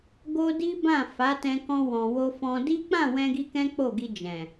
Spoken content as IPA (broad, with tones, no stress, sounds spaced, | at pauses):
ɡ o˦ d i˦ b ã˦˨ f a˨˦ t ɛ̃˧ k ɔ̃˧ w ɔ̃˨ w o˧ f ɔ̃˧ d i˦ k͡p ã˦˨ w ɛ̃˧ ɡ i˧ k ɛ̃˦ k͡p o˦˨ ɡ i˧ d͡ʒ ɛ̃˨